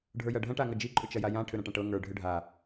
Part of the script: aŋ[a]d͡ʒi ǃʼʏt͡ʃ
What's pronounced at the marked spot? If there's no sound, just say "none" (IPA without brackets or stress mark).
ɐ